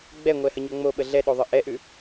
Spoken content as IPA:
ɡ͡b ɛ ŋʷ ɛ h ə ɲ o ŋ͡m o ɓ ə ɮ ɛ ɗ o ðˤ ə ʔ ɛ ʔ ʉ

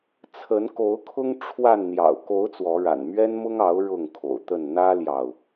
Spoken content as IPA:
t͡sʰ ə˨˦ n k o˨˦ ʊ̯ kʰ ʊ˦ ŋ ʈ͡ʂʰ w a˥˨ n n̪ j ɑ̰˨˩ ʊ̯ k o˨˦ ʊ̯ t͡s w ɔ˨˦ ɻ a̰˨˩ n m ɥ ɛ˦ n m ʊ˦ ŋ ɑ˨˦ ʊ̯ ɻ ʊ˥˨ ŋ kʰ o̰˨˩ ʊ̯ t̪ ə˥˨ n n̪ ä˦ l j ɑ˨ ʊ̯

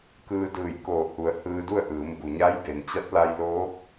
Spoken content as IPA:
k ɯː˧ d ɯː˧˩ j k oː˧˩ h u˩˧ ə̯ h ɯː˧ d u˥˨ ə̯ ʔ ɯː˩˧ m b u˩ ɲ a˧˥ j b e˩ n t͡ɕ a˧˥ t̚ l a˧ j l oː˧˥ k̚

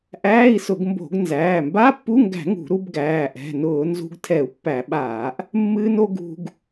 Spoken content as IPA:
ʔ æː˧˥˧ i̯ s ʊ˧˩˧ ɡ m b o̤˧˩˧ ɡ n z æː˩˧˩ m b a˧˥˧ pː u˧˥˧ ŋ ɡ æ̤˧˩˧ ŋ ṳ˧˩˧ ɾ u˧ b ɡ æː˩˧˩ ʔ ɛ̤˩˧˩ n ʊː˧˩˧ n z ṳ˧ ɡ tʰ ɛ˧˩˧ u̯ pː æ˧˩˧ ɓ aː˧˩˧ ʔ | mː ɨː˧ n o˧ ɡ ṳ˧ ɡ

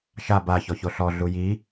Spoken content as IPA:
ʃ a b a ç ɔ ç o ɬ ɔ ɮ u j i

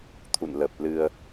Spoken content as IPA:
t̪ʰ ṵ˧˨ n l ə˨˩ p̚ l ɨ˧ ə̯

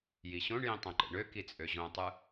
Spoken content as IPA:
j i ɕ õ ɳ j ĩ tˤ õ ǃ ḛ ɳ ø k i t͡sʼ ø ʑ õ tˤ ɯ

